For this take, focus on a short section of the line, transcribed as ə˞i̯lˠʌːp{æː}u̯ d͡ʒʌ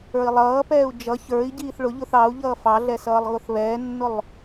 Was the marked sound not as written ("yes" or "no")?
yes